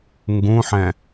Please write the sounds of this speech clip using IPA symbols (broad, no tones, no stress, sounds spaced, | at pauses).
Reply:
ŋ ɡ ũ ħ ɛ̃